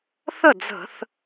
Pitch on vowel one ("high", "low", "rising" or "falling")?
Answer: falling